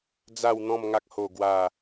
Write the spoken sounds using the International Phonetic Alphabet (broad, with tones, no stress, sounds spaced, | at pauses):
d͡z a˥˧ w n̪ ɔ̃˥˧ m ŋ a˦ k̚ h o˥˧ ɡ w a˥˧